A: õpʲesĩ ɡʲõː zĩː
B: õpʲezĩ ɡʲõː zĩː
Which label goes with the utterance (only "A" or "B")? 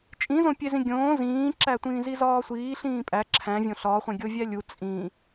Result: B